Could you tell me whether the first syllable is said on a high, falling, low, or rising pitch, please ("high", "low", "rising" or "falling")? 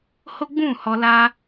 high